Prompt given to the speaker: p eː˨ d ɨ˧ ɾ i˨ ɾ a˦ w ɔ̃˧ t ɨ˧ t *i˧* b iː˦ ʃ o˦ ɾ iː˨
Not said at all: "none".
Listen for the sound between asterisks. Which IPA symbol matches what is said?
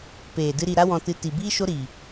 i˨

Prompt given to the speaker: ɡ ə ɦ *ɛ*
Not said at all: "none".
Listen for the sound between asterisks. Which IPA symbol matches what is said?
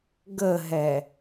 ɛ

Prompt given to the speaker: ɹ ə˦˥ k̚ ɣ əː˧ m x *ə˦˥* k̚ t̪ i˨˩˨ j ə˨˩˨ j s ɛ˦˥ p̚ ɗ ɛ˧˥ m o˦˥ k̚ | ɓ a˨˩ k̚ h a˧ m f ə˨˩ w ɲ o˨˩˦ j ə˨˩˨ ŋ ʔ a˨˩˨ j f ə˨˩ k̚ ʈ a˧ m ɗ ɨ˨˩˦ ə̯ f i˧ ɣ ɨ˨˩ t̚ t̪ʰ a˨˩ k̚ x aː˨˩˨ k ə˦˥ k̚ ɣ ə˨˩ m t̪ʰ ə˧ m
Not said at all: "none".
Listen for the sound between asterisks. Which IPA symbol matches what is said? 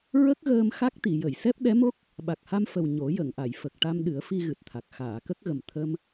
a˦˥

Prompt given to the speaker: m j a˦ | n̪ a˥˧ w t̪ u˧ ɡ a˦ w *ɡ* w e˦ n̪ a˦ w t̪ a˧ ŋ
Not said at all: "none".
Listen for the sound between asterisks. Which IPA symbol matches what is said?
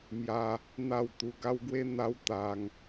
ɡ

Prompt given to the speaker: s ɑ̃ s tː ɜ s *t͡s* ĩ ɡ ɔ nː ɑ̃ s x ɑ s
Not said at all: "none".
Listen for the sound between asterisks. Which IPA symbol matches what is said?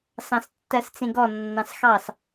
t͡s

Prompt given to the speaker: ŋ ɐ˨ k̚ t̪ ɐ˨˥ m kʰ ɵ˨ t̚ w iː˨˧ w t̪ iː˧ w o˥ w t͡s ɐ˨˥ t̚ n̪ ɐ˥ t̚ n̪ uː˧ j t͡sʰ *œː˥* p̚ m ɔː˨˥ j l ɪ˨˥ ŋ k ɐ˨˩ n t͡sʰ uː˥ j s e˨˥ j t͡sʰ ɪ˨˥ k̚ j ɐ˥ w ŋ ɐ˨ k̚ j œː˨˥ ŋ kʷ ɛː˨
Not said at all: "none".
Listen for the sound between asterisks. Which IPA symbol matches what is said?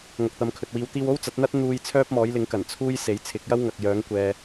œː˥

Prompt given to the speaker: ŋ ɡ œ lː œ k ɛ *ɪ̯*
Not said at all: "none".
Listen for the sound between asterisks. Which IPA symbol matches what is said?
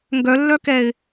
ɪ̯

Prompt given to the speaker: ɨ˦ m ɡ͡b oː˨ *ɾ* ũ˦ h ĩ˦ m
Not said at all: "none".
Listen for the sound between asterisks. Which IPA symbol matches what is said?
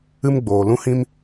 l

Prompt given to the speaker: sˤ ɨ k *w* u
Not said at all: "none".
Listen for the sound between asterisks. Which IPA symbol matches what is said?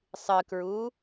ɹ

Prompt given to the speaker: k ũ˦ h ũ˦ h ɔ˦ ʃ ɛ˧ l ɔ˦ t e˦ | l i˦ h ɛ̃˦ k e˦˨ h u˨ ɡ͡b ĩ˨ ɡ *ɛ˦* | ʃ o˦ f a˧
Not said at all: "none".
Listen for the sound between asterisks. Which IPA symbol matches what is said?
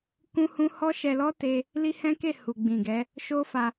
ɛ˨˦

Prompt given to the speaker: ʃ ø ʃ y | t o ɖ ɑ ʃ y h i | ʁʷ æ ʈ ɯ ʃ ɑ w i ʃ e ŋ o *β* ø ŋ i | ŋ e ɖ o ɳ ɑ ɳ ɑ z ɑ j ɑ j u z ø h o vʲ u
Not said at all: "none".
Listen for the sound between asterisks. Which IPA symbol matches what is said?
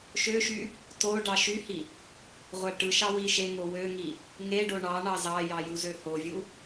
w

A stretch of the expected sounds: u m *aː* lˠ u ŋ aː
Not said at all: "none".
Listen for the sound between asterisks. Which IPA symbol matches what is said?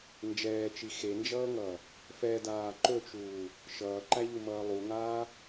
ʌː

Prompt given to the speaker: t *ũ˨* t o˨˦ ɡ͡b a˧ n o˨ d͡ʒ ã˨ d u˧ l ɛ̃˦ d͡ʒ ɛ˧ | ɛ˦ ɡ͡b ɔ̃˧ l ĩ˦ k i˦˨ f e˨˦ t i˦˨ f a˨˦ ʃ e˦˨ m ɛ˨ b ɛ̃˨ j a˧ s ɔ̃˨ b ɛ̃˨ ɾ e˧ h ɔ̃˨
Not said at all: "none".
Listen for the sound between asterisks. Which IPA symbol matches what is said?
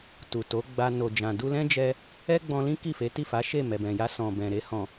u˨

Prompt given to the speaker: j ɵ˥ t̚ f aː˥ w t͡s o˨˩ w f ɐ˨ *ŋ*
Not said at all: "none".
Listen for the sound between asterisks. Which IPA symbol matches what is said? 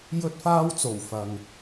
ŋ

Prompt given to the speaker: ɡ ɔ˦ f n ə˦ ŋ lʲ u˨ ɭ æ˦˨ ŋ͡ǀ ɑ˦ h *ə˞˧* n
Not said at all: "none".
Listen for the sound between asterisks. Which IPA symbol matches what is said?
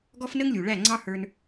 ə˞˧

